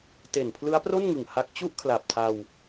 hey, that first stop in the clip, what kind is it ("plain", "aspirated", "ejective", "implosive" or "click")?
plain